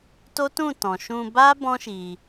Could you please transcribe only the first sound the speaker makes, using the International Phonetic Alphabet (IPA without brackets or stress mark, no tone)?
t